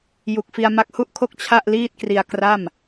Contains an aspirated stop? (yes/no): yes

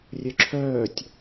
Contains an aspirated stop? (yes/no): yes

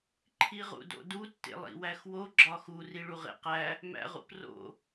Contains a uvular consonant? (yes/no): yes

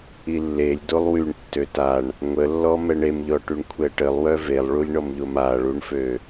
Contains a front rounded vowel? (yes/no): yes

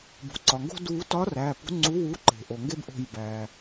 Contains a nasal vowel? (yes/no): no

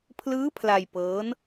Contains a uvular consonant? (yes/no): no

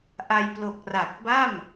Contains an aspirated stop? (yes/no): no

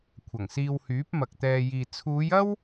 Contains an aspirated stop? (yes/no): yes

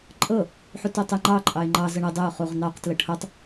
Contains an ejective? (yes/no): yes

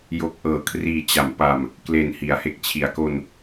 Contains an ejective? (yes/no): no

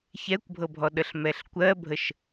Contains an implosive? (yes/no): yes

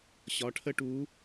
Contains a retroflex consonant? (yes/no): yes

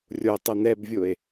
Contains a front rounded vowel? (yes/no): no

